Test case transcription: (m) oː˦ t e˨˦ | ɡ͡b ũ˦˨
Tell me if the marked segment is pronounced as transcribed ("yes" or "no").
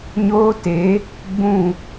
no